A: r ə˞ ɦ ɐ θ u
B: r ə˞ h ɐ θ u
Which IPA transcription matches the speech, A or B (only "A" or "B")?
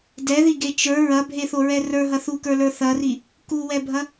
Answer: A